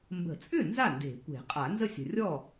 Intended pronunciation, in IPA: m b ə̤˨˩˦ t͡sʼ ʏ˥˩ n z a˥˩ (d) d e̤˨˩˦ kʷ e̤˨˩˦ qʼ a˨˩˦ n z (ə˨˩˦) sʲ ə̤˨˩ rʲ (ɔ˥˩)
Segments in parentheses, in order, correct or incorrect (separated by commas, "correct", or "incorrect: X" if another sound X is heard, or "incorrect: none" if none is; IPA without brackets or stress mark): incorrect: n, incorrect: ə˥˩, correct